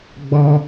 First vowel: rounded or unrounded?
rounded